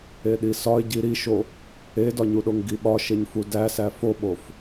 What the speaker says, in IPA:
e ɗ i s ɒ ɪ̯ ɟ i ɾ i ʃ o | e d ɒ ɲ u ɗ o ŋ ɡ i ɓ ɒ ʃ e ɲ f u d æ s æ f o ɓ o f

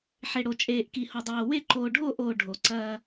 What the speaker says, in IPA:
ħ e˨ ɽ o˨ t͡ʃʼ eː˨ ʔ k i˨ h o˨ dˤ oː˨ w e˦˨ ǃ oː˨ ɖʱ oː˦˨ ʔ oː˨ ɖʱ o˨ ǀ ɐː˦

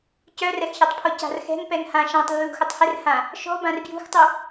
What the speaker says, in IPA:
c œ r ɛ x ç a tˤ pʰ ɔ c a̤ r x ɛ̤ ŋ p ɛ ŋ h ã ʃ ã tˤ lː ṳ x ʊ tˤ h ɪ r h ã | ʃ ɔ̤ b ã r b j ṳ x tˤ u

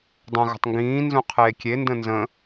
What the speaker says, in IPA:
dˤ ə̃ ɣ ə̤ tˤ ŋ ɡ ĩː n z ũ qʰ eː kʲ e n d ə̃ n z ə̃

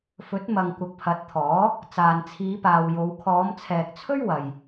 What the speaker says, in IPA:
f ɵ˨˥ t̚ m ɐ˨ ŋ kʷ ɐ˨˥ k̚ pʰ ɐ˨˥ t̚ t̪ʰ ɔː˨˥ | t͡s aː˨ n t͡sʰ iː˨˧ p aː˨ w j o˨˧ w kʰ ɔː˨˧ m t͡sʰ ɛː˨ k̚ t͡sʰ ɵ˥ ɥ w ɐ˨ j

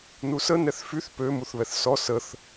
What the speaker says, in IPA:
n u s ə n ɛ θ f y θ p ø m u θ β ɛ θ s ɔ s ə θ

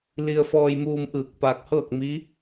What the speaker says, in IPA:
l i˧ ə̯ f ɔː˧ j m uː˧ m ʔ ɯː˧˩ k̚ p aː˧ k̚ h ɤː˥˨ k̚ m i˧˥

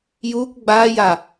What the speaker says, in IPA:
j uː kʷ ɡ͡b aː j a

